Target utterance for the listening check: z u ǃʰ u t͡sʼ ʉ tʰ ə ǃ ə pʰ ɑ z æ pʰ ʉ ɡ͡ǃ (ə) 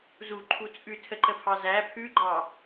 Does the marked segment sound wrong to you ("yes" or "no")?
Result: yes